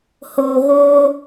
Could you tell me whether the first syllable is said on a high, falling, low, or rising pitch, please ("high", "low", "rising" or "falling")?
low